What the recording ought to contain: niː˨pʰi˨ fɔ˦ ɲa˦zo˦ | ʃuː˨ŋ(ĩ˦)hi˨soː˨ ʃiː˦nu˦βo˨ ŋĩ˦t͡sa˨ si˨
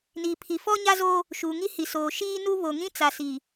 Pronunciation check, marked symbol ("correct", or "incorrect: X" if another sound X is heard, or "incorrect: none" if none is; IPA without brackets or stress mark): incorrect: i˦